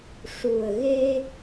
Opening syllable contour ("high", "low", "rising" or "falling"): low